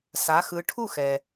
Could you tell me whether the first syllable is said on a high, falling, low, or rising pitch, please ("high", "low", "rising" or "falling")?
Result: rising